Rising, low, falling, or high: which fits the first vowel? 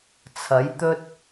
rising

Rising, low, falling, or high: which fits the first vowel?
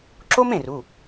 high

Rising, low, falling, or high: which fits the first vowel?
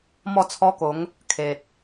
falling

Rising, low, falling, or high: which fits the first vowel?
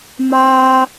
high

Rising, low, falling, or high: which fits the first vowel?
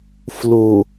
low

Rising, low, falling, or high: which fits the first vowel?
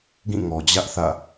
falling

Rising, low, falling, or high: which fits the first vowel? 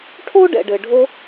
high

